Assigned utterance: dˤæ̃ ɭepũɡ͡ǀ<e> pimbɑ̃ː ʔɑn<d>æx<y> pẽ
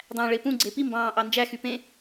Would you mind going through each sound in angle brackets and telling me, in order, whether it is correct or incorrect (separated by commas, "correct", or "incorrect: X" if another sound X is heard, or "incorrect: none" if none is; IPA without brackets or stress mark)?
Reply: correct, incorrect: d͡ʒ, correct